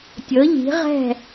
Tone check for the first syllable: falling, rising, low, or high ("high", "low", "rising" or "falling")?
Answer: rising